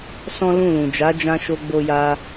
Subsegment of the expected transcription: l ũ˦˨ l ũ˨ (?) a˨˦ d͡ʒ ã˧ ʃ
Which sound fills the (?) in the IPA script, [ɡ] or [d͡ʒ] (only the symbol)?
d͡ʒ